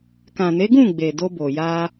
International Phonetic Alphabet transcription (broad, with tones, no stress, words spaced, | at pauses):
kã˨ne˨˦ɡũ˦˨ ɡ͡be˨do˧bo˨ ja˧